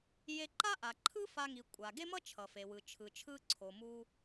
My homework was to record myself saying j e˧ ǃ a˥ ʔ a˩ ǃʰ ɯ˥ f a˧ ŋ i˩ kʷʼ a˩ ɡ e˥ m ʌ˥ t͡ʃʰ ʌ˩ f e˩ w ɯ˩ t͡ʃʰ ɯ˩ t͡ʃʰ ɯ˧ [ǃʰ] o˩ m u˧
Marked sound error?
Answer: yes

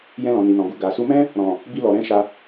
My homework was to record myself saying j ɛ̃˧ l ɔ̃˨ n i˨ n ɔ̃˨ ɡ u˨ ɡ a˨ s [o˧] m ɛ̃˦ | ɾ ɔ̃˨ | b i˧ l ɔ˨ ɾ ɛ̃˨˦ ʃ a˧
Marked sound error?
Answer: yes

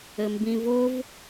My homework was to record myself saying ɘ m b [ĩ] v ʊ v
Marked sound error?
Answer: no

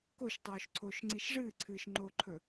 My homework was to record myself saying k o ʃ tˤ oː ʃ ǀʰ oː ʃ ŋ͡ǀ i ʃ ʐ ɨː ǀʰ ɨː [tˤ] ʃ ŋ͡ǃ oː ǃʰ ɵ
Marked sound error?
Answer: yes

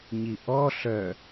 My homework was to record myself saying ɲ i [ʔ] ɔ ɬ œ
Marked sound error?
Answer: no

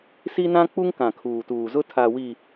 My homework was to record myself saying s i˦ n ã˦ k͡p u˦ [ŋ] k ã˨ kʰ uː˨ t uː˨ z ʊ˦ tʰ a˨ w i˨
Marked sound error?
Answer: no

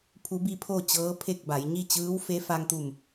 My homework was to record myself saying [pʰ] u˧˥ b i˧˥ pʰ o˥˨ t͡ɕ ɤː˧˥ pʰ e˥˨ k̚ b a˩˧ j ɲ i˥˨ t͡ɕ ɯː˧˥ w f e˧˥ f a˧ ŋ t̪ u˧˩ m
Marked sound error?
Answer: no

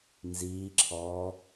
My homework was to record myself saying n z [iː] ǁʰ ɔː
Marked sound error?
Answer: no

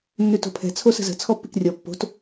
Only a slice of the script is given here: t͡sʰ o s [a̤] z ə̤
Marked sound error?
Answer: yes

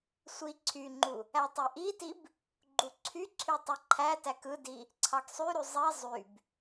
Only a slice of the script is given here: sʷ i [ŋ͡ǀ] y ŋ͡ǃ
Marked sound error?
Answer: yes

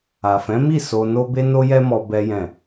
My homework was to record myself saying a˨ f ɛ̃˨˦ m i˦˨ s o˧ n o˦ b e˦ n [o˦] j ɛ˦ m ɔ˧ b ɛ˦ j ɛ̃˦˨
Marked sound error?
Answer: no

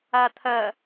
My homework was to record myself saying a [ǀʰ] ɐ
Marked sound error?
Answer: yes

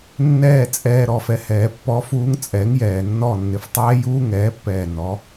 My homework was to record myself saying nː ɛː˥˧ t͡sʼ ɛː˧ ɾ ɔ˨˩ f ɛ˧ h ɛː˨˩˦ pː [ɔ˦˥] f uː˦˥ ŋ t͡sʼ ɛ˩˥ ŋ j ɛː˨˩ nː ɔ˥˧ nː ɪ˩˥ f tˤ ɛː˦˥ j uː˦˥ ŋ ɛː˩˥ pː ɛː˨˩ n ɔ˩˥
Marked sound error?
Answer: no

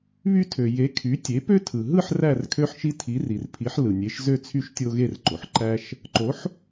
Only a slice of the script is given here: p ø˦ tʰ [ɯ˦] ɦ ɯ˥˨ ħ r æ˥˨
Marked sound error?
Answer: yes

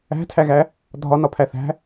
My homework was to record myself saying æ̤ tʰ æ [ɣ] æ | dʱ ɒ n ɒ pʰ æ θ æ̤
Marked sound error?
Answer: no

